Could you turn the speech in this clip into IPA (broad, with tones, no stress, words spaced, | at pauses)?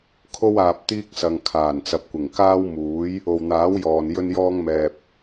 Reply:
kʰo˥waː˨p̚t̪iː˥k̚sɐ˨ŋ kʰaː˨˩nt͡sɐ˨p̚kʷɪ˨˩ŋ kaː˥wmuː˨˥j | o˨wn̪aː˨˥wjɔː˨n jɵ˥njɔː˥ŋmɛː˧p̚